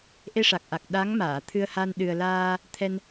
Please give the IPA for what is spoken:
ʔe˧ʂa˨˩k̚ʔa˨˩k̚ ɗa˧˥ŋ maː˨˩˨t̪ʰɨ˧ə̯ha˧n ɗɨ˨˩ə̯laː˧ | t̪ʰɛ˧n

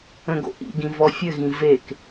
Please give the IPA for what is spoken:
ə̃ɡo̰ʔḭɡĩ vɔfʲɘɣĩ vek

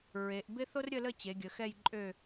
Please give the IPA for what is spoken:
ɹe˩˧ʔ bɪ˥ θo˥rɾʲə˥˧lə˥˧t͡ɕe˩˧ ɡʲə˩˧ xɛ˥˧jǃʼø˥˧

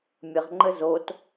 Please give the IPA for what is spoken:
mʲəʁŋ͡ǃə zot

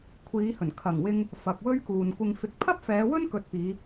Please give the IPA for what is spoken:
kʷʰiː˨˧hɵ˨˩n kʰɐ˨˩ŋwɪ˧ŋ | fɐ˨k̚wɵ˥ɥ kuː˨nkʷɪ˧ŋ fɪ˨˥k̚pʰɐ˥p̚fɛː˨˧wɵ˥n kɵ˧t̚piː˨˧

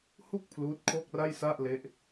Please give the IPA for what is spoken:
hu˥˩k̚ pʰluː˦˥t̚kʰo˥˩k̚ra˥˩j sa˥˩ʔle˦˥ʔ

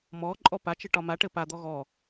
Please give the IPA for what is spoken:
mɔ ǃʼɔpat͡ʃɘ ʈɒmaʈɘ pad̪ɔ ɣɔ

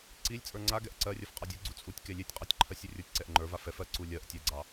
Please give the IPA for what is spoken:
ǀilʲt͡sʼə˞ ŋ͡ǀaɡɛʔ ǀɜrʲɜf qʼɑdʲuɡ͡ǀu t͡sʼutʲ kelʲetʲqʼɑtʲ ǃʰɜsʲurʲə˞tʲǀɛʔ ŋ͡ǃə˞vaf ɛf ɜǀu lʲɜʔ tʲɛɡ͡ǀɑ

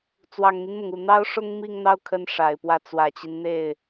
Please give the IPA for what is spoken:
t͡swɑ˨˩ŋn̪i˦nmʊ˩ŋu˨˩ n̪ɑ˥ʊ̯ʂʊ˥ŋ mi˥˧ŋn̪ɑ˥˩ʊ̯kʰə˧˥n ʂa˨˩ɪ̯pwä˥˩ t͡swä˨˩t͡ɕi˦n n̪e˥˩ɪ̯

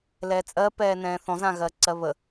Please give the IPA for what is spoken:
lɛːt͡sʼɜ pɛːnɛ̃ːθɔ̃ zãɣɜǀɜβə

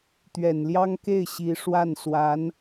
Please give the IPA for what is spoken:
t̪ɥɛ˨˩nljɑ˥ŋke˥˩ɪ̯ ɕi˧˥ ʂwa˥˩n swa˧˥n

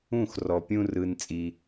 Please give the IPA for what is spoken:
ũ˦˨xrɔ˨pʲũ˦ rɯ˦n t͡sʼi˦

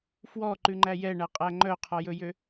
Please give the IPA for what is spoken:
fwɔǃʉŋ͡ǃæ jɛɳæqʼæ ŋ͡ǃœqʰɔjɵjø

